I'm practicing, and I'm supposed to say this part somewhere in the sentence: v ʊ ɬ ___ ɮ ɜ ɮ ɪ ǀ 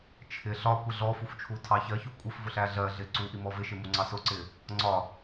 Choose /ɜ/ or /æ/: æ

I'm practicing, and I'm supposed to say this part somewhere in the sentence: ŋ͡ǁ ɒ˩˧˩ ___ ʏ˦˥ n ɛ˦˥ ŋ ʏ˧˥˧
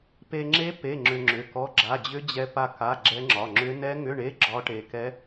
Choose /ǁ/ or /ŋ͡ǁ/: ŋ͡ǁ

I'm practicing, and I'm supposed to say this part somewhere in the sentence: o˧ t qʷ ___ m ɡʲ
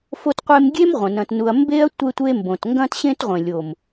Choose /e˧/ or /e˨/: e˧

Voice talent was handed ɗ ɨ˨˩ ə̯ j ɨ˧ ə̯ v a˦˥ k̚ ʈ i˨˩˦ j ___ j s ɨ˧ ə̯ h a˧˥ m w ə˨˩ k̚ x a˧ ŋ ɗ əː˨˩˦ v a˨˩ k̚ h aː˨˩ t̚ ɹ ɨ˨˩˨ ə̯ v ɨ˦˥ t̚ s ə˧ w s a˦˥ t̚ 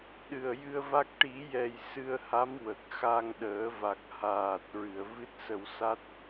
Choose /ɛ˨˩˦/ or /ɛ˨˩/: ɛ˨˩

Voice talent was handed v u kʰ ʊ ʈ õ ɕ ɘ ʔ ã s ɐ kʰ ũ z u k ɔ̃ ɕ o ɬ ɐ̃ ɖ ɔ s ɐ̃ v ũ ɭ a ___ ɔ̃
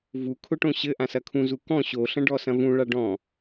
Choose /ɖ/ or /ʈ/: ɖ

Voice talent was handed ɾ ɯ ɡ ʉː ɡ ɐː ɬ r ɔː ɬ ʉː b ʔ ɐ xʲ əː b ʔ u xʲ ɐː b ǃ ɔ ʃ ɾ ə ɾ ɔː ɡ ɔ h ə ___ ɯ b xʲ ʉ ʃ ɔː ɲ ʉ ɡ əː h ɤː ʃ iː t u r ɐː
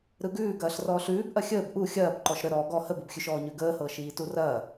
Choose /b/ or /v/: b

